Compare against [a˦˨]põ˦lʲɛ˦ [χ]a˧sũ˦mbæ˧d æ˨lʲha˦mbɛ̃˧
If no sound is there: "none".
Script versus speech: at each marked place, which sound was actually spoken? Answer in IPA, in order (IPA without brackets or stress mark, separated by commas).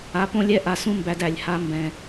a˨˦, ʔ